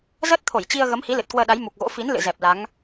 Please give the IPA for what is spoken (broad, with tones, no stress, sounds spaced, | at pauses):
z əː˦˥ t̚ t̪ʰ o˧˩ j t͡ɕ i˧ ə̯ ɣ ə˨˦ m h i˨˦ l ɨ˨˩ t̚ k w əː˧ ɗ a˨˦ j m u˨˩ k̚ ɣ o̰˧˥ f i˨˦ n l ɨ̰˧˨ z ɛ˨˩ p̚ l a˨˦ ŋ